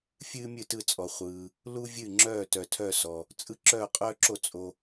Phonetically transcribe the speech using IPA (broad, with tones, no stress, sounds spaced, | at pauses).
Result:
fʲ ɨː˦ mʲ ɨ˦˨ t ɯ˦˨ t͡sʼ ɔ˨ χʷ ɯː˨ | l u˦ vʲ ɨ˦˨ ŋ͡ǁ œː˦˨ t œ˨ tʰ œ˦˨ s ɔ˨ | t͡sʼ ɯ˦ ǁ œː˦˨ qʼ œː˦ ǁ o˦˨ t͡sʼ o˨